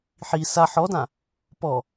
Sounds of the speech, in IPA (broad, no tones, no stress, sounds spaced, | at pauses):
ħ i s a ħ ɔ d ã | p ɔ